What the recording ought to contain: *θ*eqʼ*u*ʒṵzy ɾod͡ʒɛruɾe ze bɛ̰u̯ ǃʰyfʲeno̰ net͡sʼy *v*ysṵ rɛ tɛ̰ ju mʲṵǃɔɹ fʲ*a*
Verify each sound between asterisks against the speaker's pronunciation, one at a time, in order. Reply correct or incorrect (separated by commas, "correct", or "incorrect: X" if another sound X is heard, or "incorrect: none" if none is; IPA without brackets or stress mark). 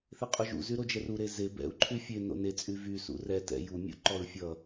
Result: correct, correct, correct, incorrect: ʌ